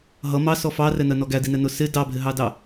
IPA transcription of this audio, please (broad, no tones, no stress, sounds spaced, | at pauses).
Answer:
ɦ ʌ m ɑ s ɔ f ɑ r ɛ n ɜ n ɔ ɡ æ d i n ɛ n ʊ s ɪ d ɑ bʱ ɪ ɦ ɑ d ɑ